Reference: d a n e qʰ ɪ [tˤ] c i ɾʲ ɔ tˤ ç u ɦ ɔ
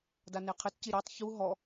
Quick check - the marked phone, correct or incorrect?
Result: incorrect